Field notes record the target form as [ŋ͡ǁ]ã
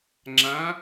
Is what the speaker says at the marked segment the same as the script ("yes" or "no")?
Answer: yes